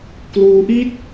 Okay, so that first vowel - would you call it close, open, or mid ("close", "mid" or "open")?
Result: close